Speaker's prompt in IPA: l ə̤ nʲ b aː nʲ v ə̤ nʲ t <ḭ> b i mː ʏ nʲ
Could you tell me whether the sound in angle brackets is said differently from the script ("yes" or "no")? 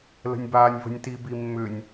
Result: yes